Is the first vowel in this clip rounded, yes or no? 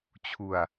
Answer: yes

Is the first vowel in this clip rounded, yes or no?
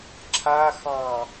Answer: no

